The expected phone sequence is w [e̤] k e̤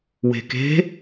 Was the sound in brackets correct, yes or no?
yes